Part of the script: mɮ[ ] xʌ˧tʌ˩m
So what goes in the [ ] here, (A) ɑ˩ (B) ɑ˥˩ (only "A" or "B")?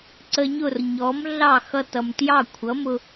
B